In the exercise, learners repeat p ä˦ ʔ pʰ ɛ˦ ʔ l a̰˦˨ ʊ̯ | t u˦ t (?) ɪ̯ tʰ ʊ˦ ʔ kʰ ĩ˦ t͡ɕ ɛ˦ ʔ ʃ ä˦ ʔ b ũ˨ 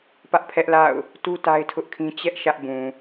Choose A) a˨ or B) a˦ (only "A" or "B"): B